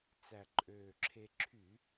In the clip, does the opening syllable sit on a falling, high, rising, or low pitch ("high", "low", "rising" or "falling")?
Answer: low